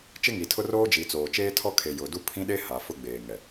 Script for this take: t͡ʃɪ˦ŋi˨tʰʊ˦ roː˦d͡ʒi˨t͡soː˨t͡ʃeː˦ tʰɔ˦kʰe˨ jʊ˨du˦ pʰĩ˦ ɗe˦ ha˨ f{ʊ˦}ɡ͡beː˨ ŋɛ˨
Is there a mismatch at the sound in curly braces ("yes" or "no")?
no